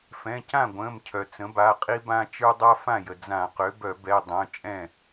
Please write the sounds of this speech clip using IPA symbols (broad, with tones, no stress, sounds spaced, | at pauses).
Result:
f ɛ̃˩˧˩ c ã˥˩ ɡʷ ə̃ː˩˧˩ m cʰ œ˩ t͡s ə̃˩˥ b a˩˧˩ qʼ i˦ b ã˦ t͡ʃ ə˞˦ dˤ a˦ f ã˥˩ j ə˩ d͡z ã˧˩˧ q ø˩˥ b œ˧˩˧ b ɛ˩˧˩ dˤ œ̃˩˧˩ t͡ʃʼ ɛ̃˥˩